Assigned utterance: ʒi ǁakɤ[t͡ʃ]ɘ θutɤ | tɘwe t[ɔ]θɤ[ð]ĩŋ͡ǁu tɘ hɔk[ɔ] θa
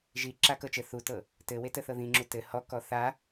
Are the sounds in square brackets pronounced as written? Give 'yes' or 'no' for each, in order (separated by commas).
yes, no, yes, yes